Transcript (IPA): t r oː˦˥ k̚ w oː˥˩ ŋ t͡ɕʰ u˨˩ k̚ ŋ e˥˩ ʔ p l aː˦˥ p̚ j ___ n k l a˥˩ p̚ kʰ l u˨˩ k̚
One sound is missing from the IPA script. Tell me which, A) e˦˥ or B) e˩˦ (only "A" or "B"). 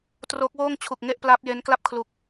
A